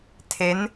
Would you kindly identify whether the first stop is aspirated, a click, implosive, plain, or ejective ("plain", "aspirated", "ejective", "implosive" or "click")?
aspirated